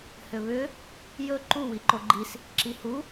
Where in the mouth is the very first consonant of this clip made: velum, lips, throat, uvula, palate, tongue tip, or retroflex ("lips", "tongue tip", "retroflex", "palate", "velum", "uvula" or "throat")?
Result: throat